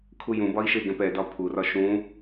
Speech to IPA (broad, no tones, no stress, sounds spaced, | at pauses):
kʰ u j ũ b ɒ i̯ ʃ e ɡ ɛ̃ p ɛ d ɒ pʰ u r ɒ ʃ ũ